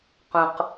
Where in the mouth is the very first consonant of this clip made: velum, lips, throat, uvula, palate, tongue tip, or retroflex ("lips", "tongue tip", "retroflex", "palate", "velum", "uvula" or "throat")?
uvula